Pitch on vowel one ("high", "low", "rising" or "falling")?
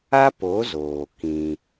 high